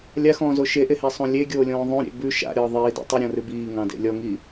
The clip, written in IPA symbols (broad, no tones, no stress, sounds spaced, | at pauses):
lʲ a x ɔ̃ː z o ʃ e ʔ e h e sˤ õ lʲ e ɡʲ oː lʲ ɔ̃ː ðˤ õ ɾʲ ḛ b ʉ ʃ a̰ ɾʲ ɔː ðˤ iː d ḛ tˤ i ɾʲ ɔ̃ r ʉ b iː ŋ ɑ̃ d ḛ lʲ ɔ ŋ i